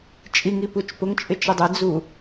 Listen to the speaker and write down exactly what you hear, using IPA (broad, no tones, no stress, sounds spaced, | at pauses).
t͡ʃʼ i ŋ i p u t͡ʃ p ʊ ŋ t͡ʃʼ ɪ t͡ʃ ɪ dˤ ɪ d͡z u